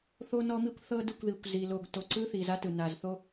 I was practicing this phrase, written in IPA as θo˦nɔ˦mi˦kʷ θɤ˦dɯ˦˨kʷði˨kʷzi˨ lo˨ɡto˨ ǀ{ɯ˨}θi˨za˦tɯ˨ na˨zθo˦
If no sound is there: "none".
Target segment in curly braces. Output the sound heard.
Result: ɯ˦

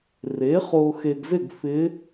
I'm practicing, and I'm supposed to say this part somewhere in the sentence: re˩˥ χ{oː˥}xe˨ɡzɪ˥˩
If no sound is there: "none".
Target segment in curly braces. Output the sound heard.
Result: oː˨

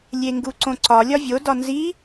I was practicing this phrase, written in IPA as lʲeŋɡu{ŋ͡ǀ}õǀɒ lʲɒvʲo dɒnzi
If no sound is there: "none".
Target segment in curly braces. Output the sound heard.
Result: ǀ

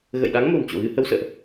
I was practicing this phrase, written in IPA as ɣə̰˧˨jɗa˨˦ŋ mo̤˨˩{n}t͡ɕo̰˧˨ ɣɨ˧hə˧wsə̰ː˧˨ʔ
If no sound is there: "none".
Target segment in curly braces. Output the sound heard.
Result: n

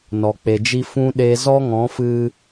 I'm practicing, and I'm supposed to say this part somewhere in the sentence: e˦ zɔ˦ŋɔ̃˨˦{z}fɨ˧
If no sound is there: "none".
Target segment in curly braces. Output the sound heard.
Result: none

